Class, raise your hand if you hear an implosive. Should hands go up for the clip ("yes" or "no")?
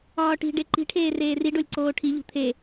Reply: no